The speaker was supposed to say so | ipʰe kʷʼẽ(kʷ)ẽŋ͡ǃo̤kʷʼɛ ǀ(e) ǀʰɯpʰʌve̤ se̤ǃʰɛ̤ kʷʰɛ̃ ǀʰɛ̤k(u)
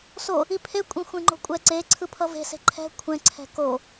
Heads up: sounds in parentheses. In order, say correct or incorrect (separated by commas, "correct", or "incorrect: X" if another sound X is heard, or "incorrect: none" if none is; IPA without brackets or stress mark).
incorrect: xʷ, correct, incorrect: o